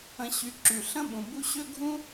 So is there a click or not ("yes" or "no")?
yes